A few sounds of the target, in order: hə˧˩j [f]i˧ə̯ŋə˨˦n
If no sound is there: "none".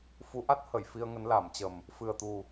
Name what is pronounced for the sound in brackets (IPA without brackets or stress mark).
f